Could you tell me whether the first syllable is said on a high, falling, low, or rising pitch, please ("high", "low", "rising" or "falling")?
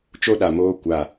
high